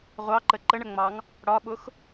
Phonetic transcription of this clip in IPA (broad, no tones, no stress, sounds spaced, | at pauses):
ʁʷ ɑ ǃ ə ǃ ə ɳ ə ŋ͡m ɑ ŋ | ɽ ɒ ɓ ʊ x